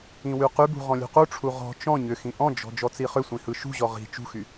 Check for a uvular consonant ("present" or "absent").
present